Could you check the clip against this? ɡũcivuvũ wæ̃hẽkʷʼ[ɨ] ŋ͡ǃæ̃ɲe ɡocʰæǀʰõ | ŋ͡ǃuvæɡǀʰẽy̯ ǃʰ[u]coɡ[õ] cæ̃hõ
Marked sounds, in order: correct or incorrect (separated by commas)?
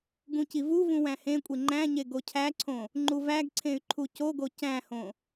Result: incorrect, correct, incorrect